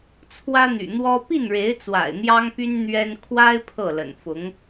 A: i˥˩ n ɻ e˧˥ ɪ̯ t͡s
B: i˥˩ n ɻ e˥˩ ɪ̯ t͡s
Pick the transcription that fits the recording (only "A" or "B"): A